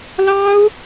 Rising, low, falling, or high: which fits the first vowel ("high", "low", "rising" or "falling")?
high